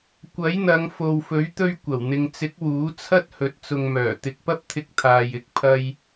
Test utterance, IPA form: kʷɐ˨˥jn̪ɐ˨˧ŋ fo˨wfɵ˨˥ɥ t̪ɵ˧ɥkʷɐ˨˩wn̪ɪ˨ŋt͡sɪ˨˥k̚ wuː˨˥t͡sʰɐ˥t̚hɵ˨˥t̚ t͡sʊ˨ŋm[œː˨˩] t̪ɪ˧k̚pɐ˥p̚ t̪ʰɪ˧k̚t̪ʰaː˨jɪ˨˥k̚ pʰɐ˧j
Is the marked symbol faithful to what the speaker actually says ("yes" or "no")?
yes